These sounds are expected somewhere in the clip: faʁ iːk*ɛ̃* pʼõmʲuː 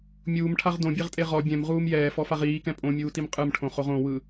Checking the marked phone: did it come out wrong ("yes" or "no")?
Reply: no